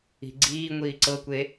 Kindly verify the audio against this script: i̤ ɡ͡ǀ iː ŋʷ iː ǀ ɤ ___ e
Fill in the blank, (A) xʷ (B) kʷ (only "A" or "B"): B